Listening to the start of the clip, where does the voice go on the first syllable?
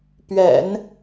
low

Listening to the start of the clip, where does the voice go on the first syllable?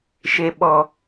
low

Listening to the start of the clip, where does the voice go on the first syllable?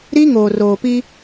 high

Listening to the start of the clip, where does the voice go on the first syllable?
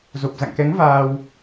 low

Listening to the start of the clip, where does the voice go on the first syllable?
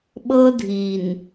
high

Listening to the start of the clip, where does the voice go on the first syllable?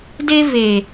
high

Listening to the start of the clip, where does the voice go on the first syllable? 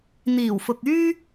low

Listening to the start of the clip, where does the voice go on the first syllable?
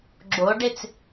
rising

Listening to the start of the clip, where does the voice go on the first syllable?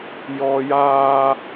high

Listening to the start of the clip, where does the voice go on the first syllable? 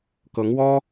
rising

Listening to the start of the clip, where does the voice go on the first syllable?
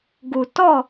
low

